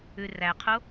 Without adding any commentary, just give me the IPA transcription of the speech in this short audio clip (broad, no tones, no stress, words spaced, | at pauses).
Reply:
ʉræqʰo